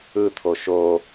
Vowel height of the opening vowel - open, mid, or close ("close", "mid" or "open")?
close